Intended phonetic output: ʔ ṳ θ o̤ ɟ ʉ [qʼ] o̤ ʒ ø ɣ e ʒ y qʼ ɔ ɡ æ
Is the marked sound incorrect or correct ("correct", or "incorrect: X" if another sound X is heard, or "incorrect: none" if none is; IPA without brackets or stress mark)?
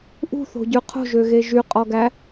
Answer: incorrect: qʰ